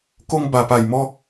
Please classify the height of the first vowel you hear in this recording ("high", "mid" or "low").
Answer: mid